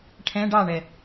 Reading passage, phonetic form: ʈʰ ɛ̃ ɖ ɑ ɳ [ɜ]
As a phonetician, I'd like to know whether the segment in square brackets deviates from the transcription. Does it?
yes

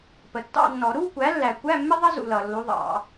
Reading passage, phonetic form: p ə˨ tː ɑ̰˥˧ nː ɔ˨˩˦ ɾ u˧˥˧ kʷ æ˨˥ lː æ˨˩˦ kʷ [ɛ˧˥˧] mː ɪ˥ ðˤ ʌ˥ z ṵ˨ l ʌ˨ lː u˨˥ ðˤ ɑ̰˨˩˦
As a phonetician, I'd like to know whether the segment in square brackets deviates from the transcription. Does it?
yes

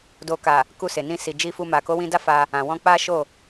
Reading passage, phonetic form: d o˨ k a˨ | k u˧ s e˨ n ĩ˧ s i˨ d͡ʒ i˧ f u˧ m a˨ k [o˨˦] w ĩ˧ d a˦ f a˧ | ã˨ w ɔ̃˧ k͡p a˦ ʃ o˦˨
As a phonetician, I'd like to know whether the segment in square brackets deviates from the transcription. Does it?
no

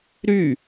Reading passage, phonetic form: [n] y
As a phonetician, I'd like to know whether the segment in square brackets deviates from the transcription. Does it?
yes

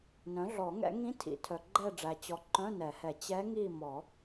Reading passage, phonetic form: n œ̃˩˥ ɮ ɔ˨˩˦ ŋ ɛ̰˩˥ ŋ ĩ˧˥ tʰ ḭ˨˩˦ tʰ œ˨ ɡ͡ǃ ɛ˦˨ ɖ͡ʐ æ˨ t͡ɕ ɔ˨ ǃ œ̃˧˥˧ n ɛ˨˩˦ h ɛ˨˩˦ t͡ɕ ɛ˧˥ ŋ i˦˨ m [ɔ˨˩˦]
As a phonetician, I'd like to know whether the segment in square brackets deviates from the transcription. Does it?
no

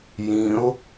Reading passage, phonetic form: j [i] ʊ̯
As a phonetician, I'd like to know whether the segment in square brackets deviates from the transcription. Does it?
yes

